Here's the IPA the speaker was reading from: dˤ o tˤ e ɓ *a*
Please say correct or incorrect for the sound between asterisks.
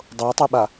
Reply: correct